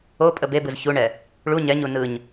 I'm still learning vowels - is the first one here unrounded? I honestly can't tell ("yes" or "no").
no